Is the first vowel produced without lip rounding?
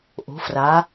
no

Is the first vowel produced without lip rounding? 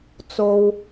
no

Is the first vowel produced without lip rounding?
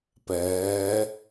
yes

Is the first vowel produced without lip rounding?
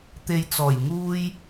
yes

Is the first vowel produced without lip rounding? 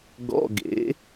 no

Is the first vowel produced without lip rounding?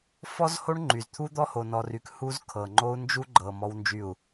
no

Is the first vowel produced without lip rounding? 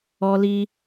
no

